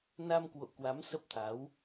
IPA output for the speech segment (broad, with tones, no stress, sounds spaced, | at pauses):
n a˧ m k w o̰˧˨ k w a˨˦ m s ə˦˥ p̚ t̪ʰ a˨˦ w